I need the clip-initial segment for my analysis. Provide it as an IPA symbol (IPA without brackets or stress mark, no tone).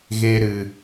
ɣ